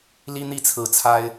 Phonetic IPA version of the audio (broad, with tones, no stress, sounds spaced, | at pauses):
l i˥ n̪ i˥˩ t͡sʰ ɹ̩˨˩ t͡sʰ a˥ ɪ̯